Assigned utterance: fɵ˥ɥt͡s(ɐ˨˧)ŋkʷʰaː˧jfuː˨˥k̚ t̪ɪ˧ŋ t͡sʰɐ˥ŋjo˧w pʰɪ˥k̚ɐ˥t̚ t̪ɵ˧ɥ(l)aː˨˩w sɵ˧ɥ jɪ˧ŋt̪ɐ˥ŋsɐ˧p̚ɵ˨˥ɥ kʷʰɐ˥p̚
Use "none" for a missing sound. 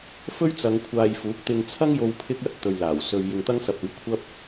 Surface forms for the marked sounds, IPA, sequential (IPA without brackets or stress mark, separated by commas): ɐ˨˧, l